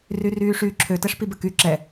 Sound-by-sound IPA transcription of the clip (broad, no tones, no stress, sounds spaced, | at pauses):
r y r yː ʂ yː ǁʰ ø t ɛ ʂ p i b ə k y ǁ ɛ